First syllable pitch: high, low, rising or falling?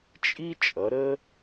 high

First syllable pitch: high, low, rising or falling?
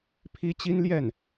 high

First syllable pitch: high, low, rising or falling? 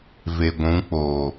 low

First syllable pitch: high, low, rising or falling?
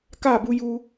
falling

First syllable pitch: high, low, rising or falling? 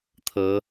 rising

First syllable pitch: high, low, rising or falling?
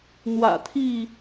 low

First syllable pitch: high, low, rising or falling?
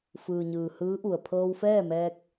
low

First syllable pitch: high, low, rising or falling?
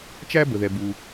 high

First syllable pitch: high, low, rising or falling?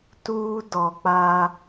high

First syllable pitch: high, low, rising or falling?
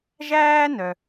high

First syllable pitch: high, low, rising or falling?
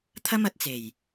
high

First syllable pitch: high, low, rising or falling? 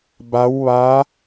rising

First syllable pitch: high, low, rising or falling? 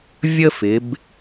high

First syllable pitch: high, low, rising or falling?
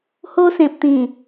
high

